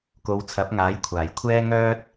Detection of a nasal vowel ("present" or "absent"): absent